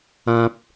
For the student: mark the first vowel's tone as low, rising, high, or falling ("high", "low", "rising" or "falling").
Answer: high